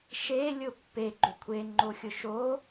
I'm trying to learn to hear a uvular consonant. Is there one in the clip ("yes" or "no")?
no